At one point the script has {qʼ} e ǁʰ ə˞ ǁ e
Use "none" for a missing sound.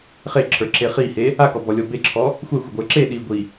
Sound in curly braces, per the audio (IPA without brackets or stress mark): χ